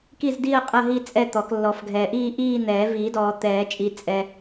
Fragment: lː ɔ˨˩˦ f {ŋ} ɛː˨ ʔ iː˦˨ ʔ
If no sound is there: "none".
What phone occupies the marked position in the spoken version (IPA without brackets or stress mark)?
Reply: ɡʱ